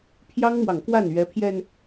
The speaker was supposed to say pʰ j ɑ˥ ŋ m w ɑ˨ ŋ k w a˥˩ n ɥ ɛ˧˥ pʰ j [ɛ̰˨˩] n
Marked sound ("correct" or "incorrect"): incorrect